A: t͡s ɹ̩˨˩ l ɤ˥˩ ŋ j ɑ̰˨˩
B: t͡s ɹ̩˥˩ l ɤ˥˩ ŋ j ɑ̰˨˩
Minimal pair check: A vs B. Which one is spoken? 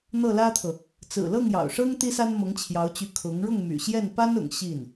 A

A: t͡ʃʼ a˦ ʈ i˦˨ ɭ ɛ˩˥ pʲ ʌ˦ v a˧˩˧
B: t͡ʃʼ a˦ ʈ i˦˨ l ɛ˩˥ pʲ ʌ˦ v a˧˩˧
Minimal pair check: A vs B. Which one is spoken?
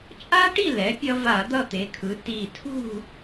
B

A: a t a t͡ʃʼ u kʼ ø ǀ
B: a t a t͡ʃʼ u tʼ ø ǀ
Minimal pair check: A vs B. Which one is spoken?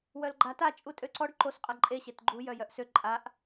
B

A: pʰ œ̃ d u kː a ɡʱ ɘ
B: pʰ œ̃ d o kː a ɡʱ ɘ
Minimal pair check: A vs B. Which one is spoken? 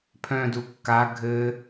A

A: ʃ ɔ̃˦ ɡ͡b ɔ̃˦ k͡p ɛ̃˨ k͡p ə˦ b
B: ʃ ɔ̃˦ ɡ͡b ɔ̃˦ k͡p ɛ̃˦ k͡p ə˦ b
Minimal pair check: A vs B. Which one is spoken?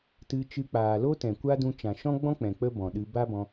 A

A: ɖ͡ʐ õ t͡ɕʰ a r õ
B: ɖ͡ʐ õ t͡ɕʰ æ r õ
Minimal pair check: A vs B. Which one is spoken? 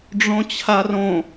A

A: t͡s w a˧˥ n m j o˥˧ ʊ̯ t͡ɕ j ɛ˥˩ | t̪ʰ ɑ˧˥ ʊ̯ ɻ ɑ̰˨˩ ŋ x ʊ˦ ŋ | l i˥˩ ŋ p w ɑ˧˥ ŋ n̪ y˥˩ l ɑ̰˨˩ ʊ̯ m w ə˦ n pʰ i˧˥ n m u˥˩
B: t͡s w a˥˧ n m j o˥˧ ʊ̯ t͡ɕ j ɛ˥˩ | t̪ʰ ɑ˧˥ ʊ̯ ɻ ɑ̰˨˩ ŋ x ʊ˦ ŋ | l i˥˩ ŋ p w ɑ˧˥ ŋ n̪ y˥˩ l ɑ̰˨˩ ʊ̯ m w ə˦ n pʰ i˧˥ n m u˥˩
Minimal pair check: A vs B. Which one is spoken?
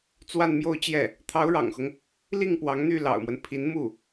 B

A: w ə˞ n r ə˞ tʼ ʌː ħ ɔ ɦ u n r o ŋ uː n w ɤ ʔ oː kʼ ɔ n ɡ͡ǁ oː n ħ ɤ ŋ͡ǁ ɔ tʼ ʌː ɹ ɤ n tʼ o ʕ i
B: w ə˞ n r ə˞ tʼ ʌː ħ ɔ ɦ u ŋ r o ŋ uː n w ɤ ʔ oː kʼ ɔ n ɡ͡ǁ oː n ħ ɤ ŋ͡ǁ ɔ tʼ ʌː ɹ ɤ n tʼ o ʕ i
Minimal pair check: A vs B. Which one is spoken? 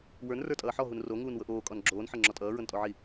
A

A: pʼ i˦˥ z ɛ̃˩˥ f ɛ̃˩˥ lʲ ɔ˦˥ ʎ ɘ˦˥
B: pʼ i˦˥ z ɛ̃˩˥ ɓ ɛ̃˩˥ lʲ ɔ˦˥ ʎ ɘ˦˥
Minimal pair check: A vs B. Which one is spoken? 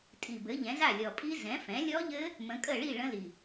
A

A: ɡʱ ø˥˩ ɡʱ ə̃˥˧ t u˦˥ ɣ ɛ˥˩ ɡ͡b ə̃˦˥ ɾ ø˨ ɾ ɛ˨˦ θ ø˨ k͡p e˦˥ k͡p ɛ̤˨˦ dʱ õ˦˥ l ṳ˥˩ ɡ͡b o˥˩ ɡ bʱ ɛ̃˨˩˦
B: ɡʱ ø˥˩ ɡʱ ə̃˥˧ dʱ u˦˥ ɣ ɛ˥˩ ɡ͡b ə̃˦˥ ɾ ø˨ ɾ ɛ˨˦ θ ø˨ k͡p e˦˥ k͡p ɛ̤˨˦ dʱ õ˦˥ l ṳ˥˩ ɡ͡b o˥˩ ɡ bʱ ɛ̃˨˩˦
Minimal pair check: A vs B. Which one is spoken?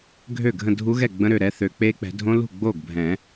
B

